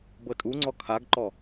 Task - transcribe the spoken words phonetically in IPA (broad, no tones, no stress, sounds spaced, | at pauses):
b ɤ tʼ u ŋ͡ǀ ɔ kʰ a ɡ ǃ ɔ